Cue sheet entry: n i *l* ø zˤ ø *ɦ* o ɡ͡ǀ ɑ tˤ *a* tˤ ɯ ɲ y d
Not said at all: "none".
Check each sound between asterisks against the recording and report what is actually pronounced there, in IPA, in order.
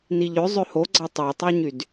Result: ʎ, h, ɑ

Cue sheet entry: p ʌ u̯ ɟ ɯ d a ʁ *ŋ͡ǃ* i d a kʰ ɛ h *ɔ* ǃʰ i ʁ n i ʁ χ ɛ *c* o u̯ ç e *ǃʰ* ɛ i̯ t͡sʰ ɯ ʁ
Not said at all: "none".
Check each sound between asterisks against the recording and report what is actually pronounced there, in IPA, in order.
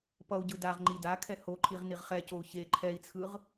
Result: ŋ͡ǃ, o, c, ǃʰ

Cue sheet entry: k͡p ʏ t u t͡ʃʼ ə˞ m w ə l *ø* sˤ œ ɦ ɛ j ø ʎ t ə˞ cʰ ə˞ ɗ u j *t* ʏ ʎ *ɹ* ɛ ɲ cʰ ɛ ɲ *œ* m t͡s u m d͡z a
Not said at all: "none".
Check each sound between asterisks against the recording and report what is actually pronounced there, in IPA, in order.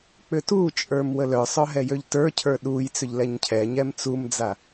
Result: œ, t͡s, l, ɛ

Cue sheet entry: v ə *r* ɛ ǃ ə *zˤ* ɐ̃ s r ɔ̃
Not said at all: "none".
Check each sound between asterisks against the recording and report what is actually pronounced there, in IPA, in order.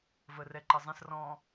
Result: r, zˤ

